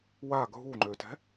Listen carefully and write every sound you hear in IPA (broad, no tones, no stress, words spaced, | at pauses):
wa ɡʱuŋ͡ǃøtɛ̤